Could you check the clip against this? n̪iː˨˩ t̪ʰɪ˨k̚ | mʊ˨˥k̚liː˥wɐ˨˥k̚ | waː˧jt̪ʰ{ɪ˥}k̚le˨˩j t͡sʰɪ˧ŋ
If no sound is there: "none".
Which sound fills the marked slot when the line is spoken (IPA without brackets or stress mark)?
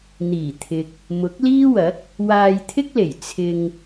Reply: ɪ˥